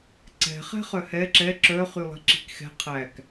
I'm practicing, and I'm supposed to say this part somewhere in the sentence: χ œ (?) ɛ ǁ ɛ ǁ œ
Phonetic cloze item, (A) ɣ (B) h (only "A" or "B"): B